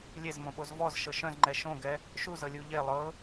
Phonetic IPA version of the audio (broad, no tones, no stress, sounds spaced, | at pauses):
lʲ e z m õ ɓ o z v ɔ z ʃ ɤ ʃ œ̃ z ŋ͡ǃ ɛ ʃ õ ɡ ɛ | ʃ u z ɤ lʲ u ʎ e lˠ ɤ